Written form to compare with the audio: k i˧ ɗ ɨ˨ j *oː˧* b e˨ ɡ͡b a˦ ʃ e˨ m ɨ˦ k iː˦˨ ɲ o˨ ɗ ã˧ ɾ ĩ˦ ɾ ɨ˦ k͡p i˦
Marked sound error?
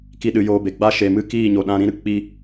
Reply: no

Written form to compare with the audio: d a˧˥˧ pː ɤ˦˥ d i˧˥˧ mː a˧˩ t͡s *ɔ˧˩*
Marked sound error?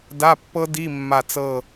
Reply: yes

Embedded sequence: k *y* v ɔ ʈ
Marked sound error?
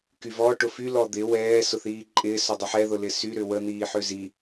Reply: no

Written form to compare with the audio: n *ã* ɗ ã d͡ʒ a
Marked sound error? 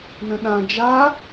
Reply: yes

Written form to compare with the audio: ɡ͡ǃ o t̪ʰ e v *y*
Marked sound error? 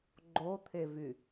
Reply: no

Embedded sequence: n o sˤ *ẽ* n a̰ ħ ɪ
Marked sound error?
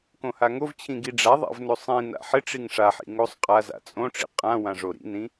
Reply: yes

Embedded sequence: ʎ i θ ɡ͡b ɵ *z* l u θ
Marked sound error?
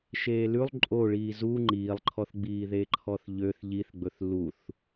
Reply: yes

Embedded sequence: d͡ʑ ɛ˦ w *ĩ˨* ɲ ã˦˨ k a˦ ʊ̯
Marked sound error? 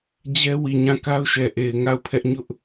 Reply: yes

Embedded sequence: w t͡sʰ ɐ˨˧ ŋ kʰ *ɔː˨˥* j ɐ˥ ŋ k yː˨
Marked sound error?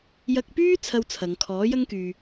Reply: no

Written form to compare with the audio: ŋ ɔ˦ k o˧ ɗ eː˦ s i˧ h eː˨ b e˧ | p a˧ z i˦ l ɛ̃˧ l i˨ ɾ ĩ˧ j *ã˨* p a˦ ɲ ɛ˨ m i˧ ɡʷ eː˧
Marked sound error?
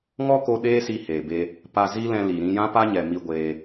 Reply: yes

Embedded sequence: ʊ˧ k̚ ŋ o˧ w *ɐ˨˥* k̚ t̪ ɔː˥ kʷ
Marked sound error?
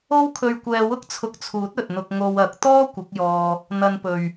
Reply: no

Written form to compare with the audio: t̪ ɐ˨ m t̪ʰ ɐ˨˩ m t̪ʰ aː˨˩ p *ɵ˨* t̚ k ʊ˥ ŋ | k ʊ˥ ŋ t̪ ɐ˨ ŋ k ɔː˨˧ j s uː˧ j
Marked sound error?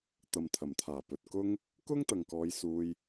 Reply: no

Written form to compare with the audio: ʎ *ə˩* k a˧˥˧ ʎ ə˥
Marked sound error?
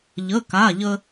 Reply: yes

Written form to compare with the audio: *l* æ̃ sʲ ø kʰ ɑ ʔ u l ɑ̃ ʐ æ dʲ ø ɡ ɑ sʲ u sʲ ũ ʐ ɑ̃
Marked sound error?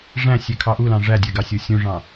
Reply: yes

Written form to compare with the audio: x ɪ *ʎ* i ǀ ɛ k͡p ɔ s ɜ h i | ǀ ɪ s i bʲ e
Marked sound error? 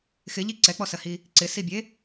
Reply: no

